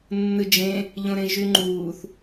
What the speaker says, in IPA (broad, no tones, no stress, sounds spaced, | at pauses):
nː ɯ d͡ʒ ẽ | ʎ õ ɾ ẽ ʒ y ŋ͡ǃ uː θ